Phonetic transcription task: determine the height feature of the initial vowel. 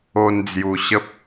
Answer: mid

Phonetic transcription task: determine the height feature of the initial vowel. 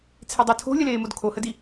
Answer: mid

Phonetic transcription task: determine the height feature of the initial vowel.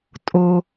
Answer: mid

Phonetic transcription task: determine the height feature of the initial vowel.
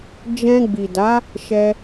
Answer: mid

